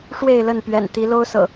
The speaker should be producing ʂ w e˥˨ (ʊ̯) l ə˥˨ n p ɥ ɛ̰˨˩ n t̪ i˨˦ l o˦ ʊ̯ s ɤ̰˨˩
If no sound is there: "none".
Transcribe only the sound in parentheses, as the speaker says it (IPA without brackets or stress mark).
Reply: ɪ̯